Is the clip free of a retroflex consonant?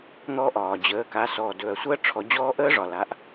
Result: no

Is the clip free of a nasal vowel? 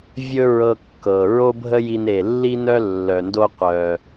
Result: yes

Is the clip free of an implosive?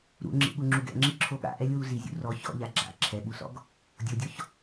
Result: no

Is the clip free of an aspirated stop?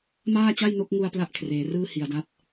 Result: no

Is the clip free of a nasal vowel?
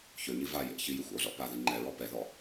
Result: yes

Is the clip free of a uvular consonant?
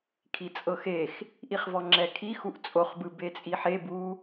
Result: no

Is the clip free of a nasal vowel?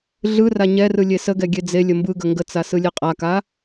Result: yes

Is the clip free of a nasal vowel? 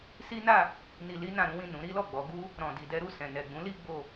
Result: no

